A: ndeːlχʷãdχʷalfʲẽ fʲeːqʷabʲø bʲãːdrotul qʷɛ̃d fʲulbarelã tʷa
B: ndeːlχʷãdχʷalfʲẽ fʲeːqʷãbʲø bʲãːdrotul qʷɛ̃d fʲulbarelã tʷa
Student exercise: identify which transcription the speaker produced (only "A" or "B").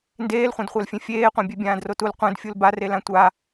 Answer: B